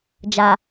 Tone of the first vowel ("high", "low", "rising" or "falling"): low